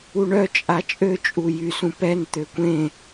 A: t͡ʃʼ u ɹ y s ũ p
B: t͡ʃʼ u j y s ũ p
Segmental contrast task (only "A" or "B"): B